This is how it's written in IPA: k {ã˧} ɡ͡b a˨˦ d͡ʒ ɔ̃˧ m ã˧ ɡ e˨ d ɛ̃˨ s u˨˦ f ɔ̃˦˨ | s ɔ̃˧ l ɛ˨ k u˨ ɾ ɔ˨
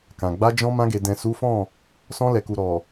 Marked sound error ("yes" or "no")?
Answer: yes